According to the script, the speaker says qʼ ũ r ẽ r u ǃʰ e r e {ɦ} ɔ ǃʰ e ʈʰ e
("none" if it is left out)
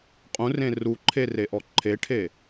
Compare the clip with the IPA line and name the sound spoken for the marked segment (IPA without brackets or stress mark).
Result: ʔ